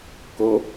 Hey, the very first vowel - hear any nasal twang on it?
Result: no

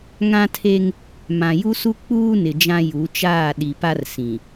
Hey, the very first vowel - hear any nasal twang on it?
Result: yes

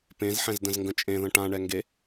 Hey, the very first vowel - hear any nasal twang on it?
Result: yes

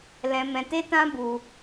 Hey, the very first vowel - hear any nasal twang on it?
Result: yes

